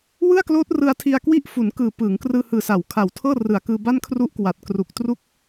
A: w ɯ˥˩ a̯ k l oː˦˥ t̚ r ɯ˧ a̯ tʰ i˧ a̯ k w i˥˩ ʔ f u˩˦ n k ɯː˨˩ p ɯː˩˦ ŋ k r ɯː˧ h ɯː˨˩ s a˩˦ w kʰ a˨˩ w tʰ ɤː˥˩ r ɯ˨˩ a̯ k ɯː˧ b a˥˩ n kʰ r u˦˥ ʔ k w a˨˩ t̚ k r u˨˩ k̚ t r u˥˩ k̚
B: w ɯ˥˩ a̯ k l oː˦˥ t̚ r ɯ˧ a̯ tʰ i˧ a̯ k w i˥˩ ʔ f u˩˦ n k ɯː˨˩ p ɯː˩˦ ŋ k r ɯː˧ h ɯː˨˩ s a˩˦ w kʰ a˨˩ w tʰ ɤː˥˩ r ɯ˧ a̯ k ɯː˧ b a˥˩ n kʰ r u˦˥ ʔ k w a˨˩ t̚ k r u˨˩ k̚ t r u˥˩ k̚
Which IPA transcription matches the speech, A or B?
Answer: A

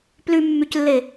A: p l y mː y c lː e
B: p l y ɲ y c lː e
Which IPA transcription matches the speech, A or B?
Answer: A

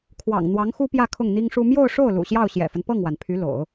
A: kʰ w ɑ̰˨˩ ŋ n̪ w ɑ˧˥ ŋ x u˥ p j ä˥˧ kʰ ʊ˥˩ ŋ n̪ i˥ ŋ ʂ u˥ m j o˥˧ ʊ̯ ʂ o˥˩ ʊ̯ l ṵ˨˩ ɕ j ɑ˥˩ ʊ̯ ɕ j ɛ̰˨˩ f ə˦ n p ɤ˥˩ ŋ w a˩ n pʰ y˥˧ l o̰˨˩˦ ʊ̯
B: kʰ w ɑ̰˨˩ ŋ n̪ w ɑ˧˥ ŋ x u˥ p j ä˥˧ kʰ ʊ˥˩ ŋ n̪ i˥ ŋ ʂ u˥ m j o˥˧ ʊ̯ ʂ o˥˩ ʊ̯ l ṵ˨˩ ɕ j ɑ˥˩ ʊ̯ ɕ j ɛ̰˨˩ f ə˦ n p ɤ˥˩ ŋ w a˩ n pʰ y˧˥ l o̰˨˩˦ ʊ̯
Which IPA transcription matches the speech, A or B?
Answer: B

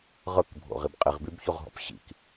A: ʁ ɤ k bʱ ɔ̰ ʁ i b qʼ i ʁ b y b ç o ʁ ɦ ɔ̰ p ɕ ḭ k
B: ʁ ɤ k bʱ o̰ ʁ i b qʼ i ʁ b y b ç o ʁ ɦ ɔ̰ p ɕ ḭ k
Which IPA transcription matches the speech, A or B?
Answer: B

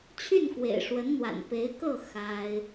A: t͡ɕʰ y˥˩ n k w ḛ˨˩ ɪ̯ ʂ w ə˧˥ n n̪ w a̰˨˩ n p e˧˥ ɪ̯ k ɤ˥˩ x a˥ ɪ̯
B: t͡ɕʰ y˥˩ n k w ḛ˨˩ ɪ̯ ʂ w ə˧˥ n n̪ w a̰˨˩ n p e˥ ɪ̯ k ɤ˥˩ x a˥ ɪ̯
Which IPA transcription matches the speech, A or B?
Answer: A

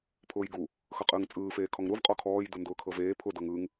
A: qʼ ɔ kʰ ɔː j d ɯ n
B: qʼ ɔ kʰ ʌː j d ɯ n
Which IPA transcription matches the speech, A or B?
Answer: A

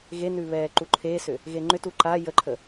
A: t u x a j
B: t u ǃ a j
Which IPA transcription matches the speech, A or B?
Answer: B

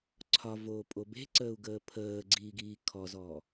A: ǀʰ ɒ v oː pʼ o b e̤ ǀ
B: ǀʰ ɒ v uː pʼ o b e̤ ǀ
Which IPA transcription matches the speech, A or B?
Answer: A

